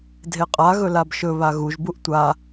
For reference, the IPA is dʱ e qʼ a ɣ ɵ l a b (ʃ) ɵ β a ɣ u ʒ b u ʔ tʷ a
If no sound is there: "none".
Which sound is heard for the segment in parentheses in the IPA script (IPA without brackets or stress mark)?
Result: ʃ